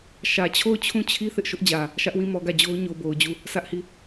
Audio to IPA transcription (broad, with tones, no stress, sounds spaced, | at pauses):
ʃ ä˨ t͡ɕʰ o˦˨ ʊ̯ t͡ɕʰ ũ˦˨ t͡ɕʰ i˦ θ ɪ˦ ʔ ʃ ʊ˦ ʔ d͡ʑ ä˨ | ʃ ä˦ ʔ w ĩ˦˨ m ɔ˨ ɡ ä˦˨ d͡ʑ o˦ ʊ̯ ɲ o˨ b o˨ ʊ̯ d͡ʑ u˦˨ | s ä˦ ʔ h i˦˨